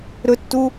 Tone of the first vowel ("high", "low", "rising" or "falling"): high